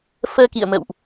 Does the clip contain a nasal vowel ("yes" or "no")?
no